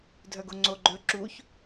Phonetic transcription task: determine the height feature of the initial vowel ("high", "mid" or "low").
mid